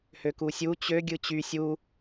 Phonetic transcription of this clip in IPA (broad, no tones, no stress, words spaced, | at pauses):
høkusʲu t͡ɕø ɡʲɯt͡ɕy sʲu